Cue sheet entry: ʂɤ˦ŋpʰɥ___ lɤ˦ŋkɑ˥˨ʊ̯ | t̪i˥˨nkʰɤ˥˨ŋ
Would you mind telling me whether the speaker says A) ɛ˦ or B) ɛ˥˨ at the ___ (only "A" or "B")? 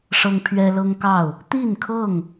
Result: A